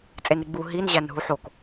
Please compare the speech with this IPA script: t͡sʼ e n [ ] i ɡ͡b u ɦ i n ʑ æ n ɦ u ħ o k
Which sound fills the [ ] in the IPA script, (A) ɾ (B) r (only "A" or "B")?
A